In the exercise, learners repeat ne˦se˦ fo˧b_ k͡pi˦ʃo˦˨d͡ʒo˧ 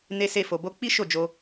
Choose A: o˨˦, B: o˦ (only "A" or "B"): B